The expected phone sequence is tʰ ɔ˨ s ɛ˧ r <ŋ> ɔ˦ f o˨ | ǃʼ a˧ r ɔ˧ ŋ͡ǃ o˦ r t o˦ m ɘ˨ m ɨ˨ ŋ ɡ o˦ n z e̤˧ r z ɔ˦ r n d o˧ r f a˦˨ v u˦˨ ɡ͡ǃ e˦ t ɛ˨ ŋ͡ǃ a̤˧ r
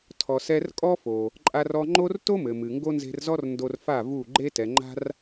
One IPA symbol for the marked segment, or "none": kʼ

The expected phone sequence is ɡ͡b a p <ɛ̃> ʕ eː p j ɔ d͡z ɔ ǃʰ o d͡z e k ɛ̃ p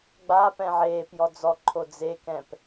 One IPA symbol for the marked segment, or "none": ɛ̃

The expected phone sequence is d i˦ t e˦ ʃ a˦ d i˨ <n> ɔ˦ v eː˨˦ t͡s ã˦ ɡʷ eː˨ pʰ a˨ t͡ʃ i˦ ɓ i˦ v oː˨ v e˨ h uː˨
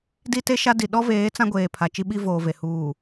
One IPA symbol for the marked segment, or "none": ɗ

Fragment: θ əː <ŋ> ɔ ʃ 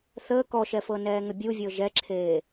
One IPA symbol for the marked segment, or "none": k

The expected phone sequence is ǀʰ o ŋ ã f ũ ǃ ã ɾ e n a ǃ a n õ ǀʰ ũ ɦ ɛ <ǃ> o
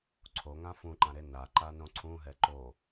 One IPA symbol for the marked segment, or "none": ǃ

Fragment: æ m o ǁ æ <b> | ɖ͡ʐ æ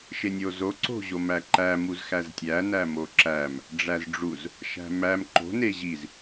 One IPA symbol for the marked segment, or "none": m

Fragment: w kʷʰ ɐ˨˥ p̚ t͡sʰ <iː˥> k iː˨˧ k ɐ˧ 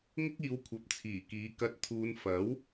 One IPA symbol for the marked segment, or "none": iː˨˩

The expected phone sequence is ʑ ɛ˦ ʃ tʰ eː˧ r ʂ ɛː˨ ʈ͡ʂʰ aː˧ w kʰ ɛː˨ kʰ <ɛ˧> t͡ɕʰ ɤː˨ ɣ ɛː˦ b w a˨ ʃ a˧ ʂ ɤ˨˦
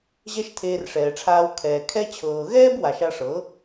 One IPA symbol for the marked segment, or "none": ɛ˧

